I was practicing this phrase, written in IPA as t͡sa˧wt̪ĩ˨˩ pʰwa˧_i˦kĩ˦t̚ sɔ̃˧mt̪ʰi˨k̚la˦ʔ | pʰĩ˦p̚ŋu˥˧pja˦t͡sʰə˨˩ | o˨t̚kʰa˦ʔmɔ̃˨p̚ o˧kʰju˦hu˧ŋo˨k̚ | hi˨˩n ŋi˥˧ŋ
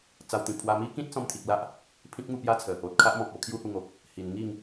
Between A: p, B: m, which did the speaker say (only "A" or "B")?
B